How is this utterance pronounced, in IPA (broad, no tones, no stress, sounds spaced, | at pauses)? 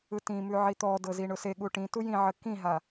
ɯ t ĩ m ʉ ʕ i t̪ ɔ d ɤ z i ɳ ʊ s e ɠ u ʈ ĩ t u j ĩ ʕ ə k ĩ ɦ a